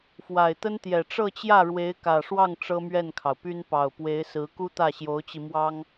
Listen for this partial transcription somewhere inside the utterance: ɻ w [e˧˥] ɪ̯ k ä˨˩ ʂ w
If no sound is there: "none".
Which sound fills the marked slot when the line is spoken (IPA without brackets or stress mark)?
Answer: e˧˥